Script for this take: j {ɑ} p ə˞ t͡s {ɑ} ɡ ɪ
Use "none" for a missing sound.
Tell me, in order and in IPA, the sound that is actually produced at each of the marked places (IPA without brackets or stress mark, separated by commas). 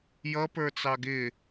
ʌ, ɑ